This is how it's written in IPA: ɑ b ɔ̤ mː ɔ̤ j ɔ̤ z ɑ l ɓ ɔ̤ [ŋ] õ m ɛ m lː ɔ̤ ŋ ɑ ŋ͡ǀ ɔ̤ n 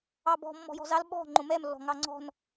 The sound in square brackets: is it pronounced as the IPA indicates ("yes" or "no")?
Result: no